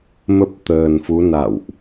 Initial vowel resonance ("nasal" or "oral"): oral